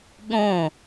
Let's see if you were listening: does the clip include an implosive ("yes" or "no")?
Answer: yes